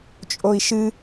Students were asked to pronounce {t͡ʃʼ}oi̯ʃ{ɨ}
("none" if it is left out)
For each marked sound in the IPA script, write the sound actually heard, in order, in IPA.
t͡ʃʼ, ɨ

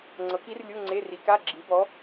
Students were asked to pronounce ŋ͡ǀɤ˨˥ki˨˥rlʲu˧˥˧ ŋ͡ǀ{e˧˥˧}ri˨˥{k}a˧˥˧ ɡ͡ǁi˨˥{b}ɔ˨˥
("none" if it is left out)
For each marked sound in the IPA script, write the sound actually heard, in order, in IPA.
e˧˥˧, k, b

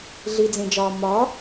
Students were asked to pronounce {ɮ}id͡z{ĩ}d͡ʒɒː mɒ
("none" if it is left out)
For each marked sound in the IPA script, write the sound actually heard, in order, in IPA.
ɮ, ẽ

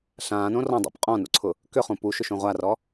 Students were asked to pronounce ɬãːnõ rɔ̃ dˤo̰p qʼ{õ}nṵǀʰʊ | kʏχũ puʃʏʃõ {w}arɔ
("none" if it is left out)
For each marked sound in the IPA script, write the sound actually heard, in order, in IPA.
ɔ̃, ʁʷ

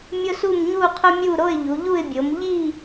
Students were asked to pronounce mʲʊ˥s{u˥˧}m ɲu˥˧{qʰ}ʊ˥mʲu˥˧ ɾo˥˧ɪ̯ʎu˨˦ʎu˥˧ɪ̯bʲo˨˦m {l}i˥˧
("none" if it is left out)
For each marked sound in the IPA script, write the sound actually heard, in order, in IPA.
u˥˧, qʰ, ʎ

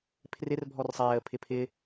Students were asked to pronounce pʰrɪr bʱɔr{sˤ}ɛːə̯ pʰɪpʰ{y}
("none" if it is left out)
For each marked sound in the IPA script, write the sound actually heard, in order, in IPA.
sˤ, ɪ

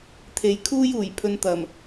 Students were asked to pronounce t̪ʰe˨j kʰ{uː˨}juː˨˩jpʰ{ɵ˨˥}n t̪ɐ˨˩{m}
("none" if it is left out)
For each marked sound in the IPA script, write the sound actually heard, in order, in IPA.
uː˥, ɵ˧, m

